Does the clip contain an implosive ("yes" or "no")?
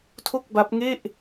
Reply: no